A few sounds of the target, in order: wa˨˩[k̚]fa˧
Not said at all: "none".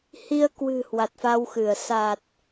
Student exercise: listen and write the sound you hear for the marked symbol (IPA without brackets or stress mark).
t̚